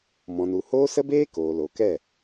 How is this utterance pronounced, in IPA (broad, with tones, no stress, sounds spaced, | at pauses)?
m ɔ̃˨ n u˨ h oː˦ s ə˦ b eː˦ k oː˨ l o˨ k ɛ˦˨